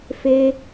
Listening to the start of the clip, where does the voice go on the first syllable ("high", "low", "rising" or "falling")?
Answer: high